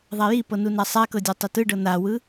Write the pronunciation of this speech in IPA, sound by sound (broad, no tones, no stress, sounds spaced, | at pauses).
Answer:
ðˤ a j i p ɤ n u n a sˤ a k ɤ dʲ a tˤ e t ɯ ɖ ɤ n a w ɯ